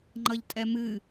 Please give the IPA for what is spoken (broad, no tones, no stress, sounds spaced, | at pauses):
ŋ͡ǃ ʌ ʎ tʼ ɛ m ɨ